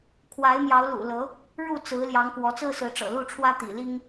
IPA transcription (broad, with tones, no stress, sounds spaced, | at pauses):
kʰ w a˨˦ ɪ̯ m j ɑ˨˦ ʊ̯ l ṵ˨˩ l ɤ˨˦ | ɻ u˥˨ t͡s ɹ̩˨˦ l j ɑ˨˦ ŋ k w ɔ˨˦ t͡s ɹ̩˦ s ɹ̩˨˦ ʈ͡ʂ ɤ̰˨˩ l u˥˨ ʈ͡ʂʰ w ä˦ t̪ ḭ˨˩ l i˦ ŋ